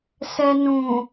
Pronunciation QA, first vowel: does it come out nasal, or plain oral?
oral